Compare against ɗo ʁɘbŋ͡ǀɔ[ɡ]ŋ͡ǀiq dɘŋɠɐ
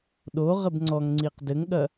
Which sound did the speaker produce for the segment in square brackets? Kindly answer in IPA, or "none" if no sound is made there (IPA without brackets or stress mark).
ŋ